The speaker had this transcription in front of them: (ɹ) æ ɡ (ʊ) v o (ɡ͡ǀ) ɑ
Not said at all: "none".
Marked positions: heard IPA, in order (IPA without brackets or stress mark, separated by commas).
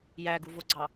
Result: j, u, ɡ͡ǀ